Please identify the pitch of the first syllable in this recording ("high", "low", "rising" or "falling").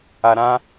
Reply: low